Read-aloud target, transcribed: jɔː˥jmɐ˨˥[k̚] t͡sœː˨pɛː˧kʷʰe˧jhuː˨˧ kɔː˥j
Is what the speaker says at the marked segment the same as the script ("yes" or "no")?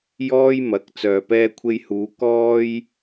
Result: yes